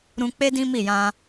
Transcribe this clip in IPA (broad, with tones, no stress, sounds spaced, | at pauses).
ɾ ũ˧ k͡p e˦ d ĩ˦ m i˦˨ j ã˧